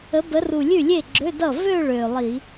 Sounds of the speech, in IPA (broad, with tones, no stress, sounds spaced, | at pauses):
ə˨˦ b ə˨˦ r u˨˩ lʲ ʉ˥˩ lʲ e˥˩ ɡ͡ǁ ø˧˥˧ d ʌ˥˩ v ø˥˧ ɭ ø˨˩ lˠ i˧˩˧